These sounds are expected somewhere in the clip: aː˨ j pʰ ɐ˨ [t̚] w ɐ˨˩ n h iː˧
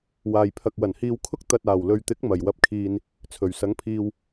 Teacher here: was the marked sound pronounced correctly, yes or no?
no